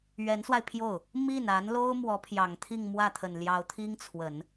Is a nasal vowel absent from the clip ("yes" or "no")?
yes